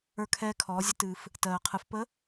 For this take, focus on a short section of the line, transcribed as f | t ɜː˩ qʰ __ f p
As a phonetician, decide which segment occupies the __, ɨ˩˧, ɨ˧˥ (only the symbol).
ɨ˩˧